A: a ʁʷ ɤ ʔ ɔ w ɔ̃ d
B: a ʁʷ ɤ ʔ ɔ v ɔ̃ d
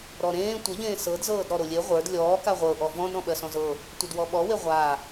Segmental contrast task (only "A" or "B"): B